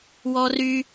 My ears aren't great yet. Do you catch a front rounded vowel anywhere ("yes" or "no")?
yes